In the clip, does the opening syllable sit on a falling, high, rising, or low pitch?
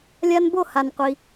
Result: high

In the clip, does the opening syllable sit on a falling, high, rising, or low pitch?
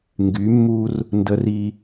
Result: rising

